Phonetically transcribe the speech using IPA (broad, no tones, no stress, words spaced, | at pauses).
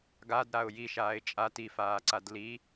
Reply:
ɡadɾaʊ̯ jiʃaːɪ̯ t͡ʃʼa tifaːǀad li